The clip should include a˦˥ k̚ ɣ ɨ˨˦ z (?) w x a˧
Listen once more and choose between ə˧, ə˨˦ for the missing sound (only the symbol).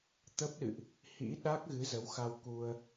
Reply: ə˨˦